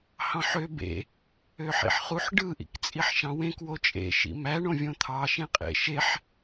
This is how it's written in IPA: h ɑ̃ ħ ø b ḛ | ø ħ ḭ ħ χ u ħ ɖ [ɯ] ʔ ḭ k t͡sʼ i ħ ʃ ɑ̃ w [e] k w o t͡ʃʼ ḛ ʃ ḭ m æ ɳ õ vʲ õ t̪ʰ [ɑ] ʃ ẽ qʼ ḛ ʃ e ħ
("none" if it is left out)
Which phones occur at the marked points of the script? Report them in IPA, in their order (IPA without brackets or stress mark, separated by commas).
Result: ɯ, ẽ, ɑ